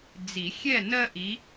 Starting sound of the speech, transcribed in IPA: d͡z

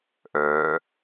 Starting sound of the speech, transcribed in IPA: ʔ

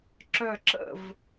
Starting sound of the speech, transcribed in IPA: ǁ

